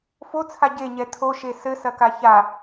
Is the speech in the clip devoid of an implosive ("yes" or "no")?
yes